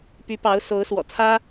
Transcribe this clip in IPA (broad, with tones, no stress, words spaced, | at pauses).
py˧˥pɑ˧˥ʊ̯ so˧˥ʊ̯ swɔ̰˨˩t͡sʰä˥